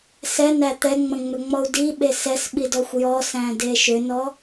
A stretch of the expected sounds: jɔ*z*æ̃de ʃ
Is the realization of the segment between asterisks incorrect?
yes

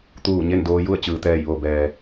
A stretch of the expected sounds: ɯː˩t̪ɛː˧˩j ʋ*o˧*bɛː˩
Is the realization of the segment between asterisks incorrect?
yes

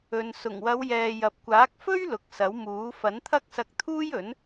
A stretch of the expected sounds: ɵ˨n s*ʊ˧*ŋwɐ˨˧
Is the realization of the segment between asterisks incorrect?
yes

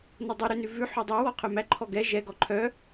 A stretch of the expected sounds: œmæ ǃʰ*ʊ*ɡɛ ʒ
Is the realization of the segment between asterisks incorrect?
yes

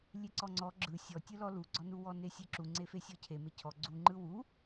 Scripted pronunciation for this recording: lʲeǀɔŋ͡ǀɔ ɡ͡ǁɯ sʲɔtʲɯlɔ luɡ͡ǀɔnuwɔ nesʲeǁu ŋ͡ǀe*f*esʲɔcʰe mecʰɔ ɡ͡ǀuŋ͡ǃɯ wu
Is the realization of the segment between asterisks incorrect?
no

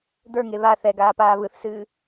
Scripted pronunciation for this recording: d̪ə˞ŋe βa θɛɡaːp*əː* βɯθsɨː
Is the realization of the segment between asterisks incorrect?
yes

